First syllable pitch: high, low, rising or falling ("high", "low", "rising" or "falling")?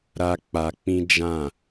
high